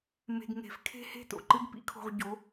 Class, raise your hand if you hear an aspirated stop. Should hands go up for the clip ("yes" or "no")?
yes